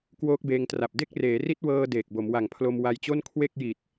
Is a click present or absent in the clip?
absent